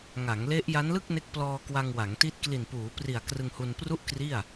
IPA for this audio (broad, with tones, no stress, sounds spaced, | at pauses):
ŋ a˩˦ ŋ l e˦˥ ʔ j a˦˥ n l ɯ˥˩ k̚ n e˦˥ k̚ p l ɔː˧ k w a˧ ŋ w a˩˦ ŋ t i˦˥ t̚ k l i˨˩ n p uː˩˦ p r i˨˩ a̯ k r ɯ˧ ŋ h u˧ n p r u˥˩ ʔ k r i˥˩ a̯